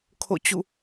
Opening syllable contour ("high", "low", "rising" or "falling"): falling